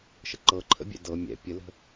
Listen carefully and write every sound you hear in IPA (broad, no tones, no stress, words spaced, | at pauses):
ʃəǃɤǃʰə̰bʲɛ̰ dɤ mʲɛ̰ pʲələ̤